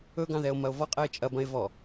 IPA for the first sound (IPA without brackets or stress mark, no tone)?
ɵ